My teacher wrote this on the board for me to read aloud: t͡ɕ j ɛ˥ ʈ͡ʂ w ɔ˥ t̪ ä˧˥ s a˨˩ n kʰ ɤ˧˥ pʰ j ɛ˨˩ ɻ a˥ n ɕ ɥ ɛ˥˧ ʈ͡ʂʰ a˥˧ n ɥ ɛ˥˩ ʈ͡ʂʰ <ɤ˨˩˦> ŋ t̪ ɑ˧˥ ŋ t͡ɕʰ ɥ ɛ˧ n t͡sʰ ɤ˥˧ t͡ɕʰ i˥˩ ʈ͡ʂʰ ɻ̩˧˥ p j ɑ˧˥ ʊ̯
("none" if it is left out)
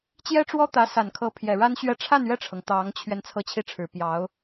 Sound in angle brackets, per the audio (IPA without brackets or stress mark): ɤ˩